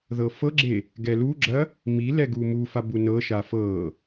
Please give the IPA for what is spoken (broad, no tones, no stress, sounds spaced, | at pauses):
ð ɤ f ɤ ɡ͡ǁ e | ɡ ɛ l u ɡ͡ǁ ɐ | m i l ɛ ɡ u m u f a b u n ɤ ʃ a f ɤ